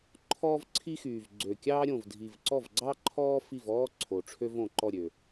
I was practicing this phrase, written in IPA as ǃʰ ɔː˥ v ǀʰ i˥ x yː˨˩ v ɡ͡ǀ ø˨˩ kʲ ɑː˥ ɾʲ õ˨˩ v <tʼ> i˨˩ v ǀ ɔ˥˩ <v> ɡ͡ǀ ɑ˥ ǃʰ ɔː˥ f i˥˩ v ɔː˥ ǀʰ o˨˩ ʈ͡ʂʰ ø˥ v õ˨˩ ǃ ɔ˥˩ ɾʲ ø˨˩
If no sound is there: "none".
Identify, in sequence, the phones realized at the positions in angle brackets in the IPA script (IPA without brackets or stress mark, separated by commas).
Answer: dʱ, v